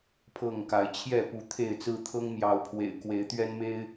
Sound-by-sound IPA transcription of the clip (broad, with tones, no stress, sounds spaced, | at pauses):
pʰ ɤ˥˨ ŋ k a˨˦ ɪ̯ t͡ɕʰ j ɛ˥˨ p u˨˦ t̪ʰ e˥˨ ɪ̯ t͡s ɹ̩˦ t̪ʰ ɤ˦ ŋ m j ɑ˨˦ ʊ̯ pʰ w ḛ˨˩ ɪ̯ k w e˨˦ ɪ̯ t̪ ɥ ɛ˦ n m e˦ ɪ̯